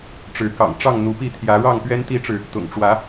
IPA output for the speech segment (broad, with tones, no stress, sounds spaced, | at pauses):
ʈ͡ʂ ɻ̩˨˦ k ɑ̰˨˩ ŋ ʈ͡ʂ ɑ˥˨ ŋ n̪ u˨˦ p i˥˨ t̪ʰ j ä˨˦ ɻ ɑ˥˨ ŋ p ɥ ɛ˦ n t̪ i˦ ʈ͡ʂ ɻ̩˨ | t̪ ʊ̰˨˩ ŋ ʈ͡ʂ w ä˨˦